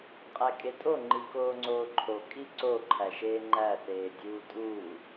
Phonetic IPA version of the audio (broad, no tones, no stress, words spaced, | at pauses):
qʼækʼetʼo ŋ͡ǃikoːŋ͡ǀoːǃʰo kʼiǀo ǃʰæʃeːŋ͡ǃæ θeːdʲuːtʼuː